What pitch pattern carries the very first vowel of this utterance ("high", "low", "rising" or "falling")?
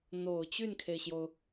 low